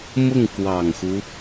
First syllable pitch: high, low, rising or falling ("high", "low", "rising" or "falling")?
falling